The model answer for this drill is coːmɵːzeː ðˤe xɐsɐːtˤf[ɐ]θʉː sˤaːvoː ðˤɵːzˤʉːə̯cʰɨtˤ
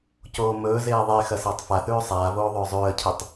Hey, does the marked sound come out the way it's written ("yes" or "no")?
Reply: no